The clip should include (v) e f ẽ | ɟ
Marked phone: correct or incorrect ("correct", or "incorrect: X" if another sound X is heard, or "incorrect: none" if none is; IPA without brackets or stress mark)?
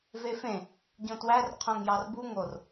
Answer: correct